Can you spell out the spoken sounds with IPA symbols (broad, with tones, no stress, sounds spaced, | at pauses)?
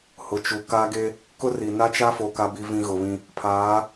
h ʊ˨ t͡ʃ u˨ k a˦ ɡ e˦ | k ʊ˦ r i˨ n a˦ t͡ʃ a˦ f o˨ k a˦ b i˦ v ĩ˦ ɣ ʊ˨ β ĩ˦ | pʰ aː˨˦